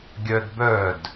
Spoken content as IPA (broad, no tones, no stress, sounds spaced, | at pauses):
ɡʲ œ d b œ d